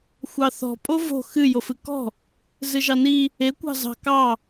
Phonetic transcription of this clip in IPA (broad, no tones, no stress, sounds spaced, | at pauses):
xʷ ɑ θ ɔ̤ pʼ o v o̤ x ɨ j o f ɨ k ɔ̤ | z ɨ ʒ ɑ n i | e kʷ ɑ̤ z ɑ̤ k ɑ